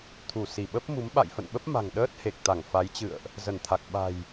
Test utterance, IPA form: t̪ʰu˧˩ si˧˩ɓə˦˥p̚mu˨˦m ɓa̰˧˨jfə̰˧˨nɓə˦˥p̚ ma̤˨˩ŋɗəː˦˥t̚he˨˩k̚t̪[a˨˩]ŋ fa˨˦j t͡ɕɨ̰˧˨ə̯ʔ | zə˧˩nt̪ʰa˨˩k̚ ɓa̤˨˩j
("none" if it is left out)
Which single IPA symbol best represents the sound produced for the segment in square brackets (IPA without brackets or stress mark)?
a˧˩